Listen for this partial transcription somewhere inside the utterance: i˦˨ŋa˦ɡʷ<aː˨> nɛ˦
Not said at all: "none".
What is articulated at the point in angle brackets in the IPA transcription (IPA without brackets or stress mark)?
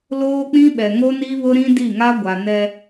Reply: a˨